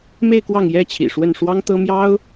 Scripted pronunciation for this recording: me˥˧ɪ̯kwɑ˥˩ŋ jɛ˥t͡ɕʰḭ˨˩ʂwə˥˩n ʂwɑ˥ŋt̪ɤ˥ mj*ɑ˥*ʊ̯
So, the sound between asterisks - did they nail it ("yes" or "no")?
yes